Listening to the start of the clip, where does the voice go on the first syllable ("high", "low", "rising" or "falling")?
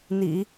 low